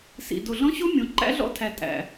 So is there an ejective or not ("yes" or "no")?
yes